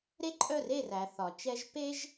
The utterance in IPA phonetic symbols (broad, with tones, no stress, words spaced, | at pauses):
ɾe˦ǃʼœ˦˨re˦˨ræ˨ θɒ˨t͡ʃɛ˦ʒ pe˦ʒ